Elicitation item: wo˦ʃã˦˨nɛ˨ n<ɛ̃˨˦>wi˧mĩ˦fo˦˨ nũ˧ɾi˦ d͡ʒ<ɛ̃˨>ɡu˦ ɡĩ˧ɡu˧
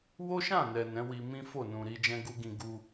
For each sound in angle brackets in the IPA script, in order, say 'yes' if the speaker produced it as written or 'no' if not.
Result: yes, no

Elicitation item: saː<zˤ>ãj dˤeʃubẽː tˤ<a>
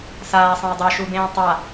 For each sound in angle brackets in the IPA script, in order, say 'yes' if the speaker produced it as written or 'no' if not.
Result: no, yes

